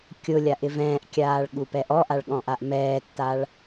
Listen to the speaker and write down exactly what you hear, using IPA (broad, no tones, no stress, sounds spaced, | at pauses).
kʲ ʊ lʲ a ʔ ɪ v ɛ̃ː ʔ kʲ aː ɭ ɠ u p ɛ ʔ ɔ ʔ a ɭ ɠ ɔ̃ ʔ a ʔ m ɛː tː a ɭ